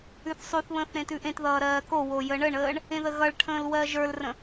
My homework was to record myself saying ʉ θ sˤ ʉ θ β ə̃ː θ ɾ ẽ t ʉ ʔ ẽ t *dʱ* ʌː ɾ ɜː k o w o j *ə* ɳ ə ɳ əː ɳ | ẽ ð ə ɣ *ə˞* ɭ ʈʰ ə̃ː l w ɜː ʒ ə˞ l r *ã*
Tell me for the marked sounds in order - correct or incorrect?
incorrect: ð, correct, incorrect: ʌ, incorrect: ə̃

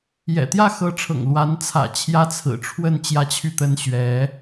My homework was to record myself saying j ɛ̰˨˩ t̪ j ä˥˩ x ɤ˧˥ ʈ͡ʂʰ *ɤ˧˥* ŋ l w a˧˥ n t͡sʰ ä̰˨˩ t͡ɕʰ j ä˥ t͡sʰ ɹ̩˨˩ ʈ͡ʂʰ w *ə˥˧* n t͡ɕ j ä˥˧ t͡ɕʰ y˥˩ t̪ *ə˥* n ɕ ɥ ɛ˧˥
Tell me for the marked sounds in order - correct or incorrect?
incorrect: ɤ̰˨˩, correct, correct

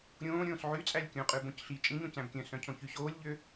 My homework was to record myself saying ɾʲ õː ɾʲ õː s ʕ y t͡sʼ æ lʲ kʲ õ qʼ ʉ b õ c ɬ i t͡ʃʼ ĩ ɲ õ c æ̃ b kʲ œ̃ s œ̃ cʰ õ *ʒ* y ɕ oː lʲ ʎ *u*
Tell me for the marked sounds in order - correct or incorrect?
incorrect: ç, incorrect: ø

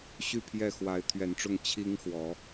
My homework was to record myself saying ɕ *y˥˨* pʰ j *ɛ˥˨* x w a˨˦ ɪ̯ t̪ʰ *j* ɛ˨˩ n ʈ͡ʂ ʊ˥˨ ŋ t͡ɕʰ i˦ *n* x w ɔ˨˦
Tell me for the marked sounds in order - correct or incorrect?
correct, correct, incorrect: ɥ, incorrect: ŋ

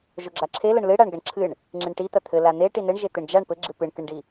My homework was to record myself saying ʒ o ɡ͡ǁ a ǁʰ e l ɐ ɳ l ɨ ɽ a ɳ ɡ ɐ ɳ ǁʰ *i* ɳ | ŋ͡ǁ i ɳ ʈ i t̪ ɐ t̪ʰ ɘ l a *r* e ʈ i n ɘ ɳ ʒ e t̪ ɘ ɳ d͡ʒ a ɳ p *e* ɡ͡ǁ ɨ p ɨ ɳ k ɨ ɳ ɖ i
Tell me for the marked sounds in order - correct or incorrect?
incorrect: ɨ, incorrect: n̪, incorrect: ɘ

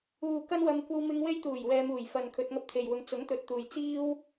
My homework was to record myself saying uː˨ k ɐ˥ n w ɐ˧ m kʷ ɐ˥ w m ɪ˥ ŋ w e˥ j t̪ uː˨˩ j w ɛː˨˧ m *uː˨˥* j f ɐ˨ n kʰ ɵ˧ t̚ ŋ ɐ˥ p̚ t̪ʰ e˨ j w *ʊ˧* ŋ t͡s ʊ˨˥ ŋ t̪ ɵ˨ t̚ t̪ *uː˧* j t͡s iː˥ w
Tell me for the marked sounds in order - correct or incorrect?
incorrect: uː˨˩, correct, incorrect: uː˨

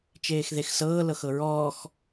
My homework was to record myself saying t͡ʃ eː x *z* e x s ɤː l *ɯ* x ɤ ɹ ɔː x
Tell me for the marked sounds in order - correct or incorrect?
incorrect: ð, incorrect: ɤ

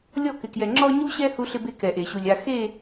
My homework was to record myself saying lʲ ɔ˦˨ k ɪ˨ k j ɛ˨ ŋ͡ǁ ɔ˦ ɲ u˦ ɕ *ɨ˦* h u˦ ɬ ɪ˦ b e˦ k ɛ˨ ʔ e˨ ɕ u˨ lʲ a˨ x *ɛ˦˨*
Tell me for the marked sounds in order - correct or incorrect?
incorrect: ɛ˦, incorrect: e˦˨

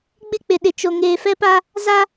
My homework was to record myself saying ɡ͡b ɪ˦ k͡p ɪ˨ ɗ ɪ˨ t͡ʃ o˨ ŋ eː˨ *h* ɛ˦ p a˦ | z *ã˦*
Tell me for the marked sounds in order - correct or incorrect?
incorrect: f, incorrect: a˦

